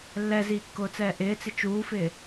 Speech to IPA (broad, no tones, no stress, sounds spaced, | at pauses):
lː ɛ z iː kː ʊː t͡s ɛː ʔ ɪː t͡s ɪ t͡ʃ uː f ɪː